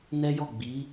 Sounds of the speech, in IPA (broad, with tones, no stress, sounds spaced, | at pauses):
n ɛ˦ j ɔ˦˨ ɡ͡b i˨˦